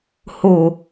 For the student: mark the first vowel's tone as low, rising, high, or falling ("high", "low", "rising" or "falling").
low